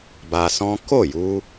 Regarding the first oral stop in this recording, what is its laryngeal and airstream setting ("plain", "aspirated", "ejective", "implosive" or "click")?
plain